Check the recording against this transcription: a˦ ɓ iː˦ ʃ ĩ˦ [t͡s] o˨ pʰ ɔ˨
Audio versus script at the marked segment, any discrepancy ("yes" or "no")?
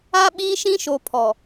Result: yes